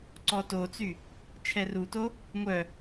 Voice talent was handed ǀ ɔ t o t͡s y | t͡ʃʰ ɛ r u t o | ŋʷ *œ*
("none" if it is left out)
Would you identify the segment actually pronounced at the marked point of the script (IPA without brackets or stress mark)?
œ